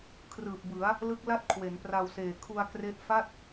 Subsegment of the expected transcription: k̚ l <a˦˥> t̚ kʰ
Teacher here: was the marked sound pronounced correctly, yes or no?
no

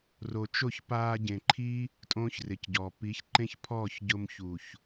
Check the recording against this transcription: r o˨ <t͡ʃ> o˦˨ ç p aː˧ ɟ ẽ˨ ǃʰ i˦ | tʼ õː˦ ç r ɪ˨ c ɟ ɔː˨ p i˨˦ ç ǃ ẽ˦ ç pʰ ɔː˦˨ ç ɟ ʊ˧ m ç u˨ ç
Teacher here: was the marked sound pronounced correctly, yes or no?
yes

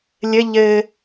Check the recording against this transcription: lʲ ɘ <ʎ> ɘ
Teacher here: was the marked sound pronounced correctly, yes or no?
yes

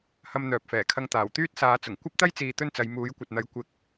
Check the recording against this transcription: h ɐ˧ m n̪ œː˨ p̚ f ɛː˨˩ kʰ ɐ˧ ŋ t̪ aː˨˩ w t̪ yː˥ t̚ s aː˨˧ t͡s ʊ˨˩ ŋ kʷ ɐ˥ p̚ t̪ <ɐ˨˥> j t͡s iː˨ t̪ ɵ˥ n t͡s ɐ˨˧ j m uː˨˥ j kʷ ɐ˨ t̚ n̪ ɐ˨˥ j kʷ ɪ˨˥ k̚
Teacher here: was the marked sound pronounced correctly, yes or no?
no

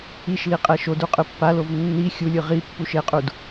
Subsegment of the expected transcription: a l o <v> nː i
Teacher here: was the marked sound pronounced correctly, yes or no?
yes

